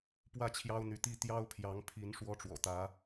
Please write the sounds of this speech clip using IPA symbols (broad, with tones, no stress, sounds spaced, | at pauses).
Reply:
p w ä˥˩ t͡ɕʰ j ɑ˥ ʊ̯ n̪ y˧˥ t̪ i˥˩ t̪ j ɑ˥ ʊ̯ pʰ j ɑ˧˥ ŋ pʰ i˧˥ n ʂ w ɔ˥ ʈ͡ʂ w ɔ̰˨˩ t̪ ä˧˥